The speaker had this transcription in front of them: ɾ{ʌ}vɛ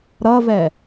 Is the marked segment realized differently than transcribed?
no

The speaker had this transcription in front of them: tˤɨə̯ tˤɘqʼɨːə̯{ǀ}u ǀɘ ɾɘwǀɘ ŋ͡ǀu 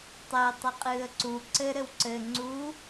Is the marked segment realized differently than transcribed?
no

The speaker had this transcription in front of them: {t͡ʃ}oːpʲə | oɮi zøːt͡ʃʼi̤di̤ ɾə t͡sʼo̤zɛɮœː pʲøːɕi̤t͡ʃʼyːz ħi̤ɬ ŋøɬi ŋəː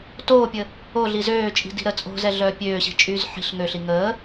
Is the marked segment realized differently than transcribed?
yes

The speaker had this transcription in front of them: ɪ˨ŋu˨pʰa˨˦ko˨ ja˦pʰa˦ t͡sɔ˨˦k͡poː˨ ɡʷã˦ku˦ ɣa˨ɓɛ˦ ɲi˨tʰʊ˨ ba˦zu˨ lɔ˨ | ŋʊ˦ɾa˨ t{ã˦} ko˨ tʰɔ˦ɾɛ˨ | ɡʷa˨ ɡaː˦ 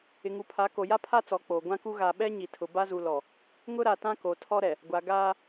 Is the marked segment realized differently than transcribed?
no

